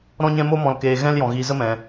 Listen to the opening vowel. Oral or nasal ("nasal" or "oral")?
nasal